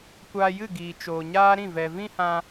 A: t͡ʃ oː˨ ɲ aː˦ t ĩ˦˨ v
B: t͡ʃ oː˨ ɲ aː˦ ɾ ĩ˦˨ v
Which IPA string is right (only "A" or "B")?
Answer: B